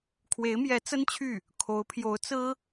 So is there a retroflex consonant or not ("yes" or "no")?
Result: no